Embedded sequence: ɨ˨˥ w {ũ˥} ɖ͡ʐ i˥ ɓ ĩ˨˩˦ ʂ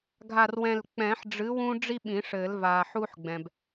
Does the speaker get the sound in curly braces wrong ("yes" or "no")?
no